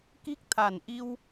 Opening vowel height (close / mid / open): close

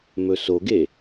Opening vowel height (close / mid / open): mid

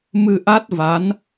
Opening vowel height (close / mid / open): close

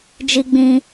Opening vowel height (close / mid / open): close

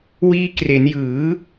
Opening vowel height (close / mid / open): close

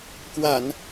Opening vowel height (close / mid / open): open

